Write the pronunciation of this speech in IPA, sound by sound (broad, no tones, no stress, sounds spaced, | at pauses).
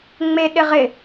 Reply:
ŋ͡m e ɗ ɪ ʁ ɪ